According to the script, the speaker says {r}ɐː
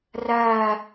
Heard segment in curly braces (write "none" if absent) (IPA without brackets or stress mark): r